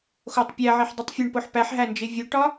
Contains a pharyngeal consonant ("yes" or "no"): yes